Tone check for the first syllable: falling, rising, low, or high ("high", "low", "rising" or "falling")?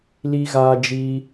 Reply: high